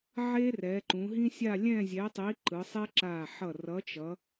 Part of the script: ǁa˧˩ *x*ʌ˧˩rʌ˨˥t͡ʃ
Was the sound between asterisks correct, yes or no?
no